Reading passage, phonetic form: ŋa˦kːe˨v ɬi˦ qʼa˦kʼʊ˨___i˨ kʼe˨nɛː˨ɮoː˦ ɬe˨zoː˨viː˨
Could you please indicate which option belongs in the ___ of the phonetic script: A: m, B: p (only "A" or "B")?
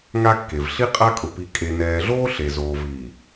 B